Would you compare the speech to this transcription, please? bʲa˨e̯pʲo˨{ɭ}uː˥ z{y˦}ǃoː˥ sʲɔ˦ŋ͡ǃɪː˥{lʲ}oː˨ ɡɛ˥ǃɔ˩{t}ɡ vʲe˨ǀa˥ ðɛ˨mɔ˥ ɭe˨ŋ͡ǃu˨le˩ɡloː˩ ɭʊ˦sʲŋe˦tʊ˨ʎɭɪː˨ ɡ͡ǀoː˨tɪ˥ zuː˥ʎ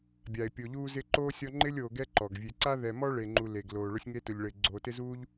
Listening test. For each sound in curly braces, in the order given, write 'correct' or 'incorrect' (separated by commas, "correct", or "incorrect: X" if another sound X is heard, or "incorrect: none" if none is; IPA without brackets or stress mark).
incorrect: ʎ, incorrect: ɪ˦, correct, incorrect: none